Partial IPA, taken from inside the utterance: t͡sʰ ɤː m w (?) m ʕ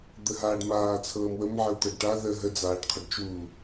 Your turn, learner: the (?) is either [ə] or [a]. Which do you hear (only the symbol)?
ə